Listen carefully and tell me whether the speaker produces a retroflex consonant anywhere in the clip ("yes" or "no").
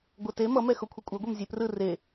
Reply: no